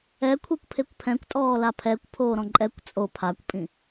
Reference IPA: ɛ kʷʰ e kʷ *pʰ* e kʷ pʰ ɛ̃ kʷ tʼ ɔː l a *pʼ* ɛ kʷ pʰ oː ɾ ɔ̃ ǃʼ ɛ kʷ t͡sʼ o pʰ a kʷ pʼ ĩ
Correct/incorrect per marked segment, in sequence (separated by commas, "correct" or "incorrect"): correct, incorrect